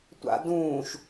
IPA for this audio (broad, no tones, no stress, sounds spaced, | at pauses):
tʷ a̰ d ũː ʃ